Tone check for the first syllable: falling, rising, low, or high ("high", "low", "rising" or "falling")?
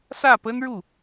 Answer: falling